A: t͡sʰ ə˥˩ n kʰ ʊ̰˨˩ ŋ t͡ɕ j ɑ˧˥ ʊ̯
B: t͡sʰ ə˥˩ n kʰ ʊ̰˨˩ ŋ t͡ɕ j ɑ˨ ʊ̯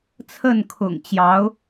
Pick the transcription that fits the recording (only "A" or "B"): A